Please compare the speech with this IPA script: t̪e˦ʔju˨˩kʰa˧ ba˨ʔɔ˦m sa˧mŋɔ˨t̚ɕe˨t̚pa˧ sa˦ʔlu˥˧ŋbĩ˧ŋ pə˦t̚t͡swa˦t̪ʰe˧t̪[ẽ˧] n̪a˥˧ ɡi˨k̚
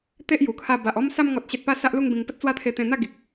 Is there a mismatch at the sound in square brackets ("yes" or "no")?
no